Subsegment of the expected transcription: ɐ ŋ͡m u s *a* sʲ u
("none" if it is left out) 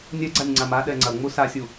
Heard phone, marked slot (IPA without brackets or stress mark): a